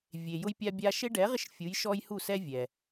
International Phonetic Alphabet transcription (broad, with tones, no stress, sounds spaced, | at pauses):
vʲ e˩ j ʊ˦ j pʲ a˦ bʲ a˦ ʃ e˦ ɖ ɛ˩˥ ʁ ɪ˦ ʃ fʲ u˩˧ j ʃ ɔ˦ j h u˦˨ s ɛ˦ vʲ ɛ˩